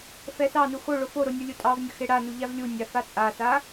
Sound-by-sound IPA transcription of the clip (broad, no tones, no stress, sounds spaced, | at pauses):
f ɛ s ɑ n u x o ɭ o f o ɾ o nʲ u lʲ u tʼ ɑ v nʲ ə x e ɽ a n u ʎ a v lʲ u nʲ a f a t͡sʼ a s a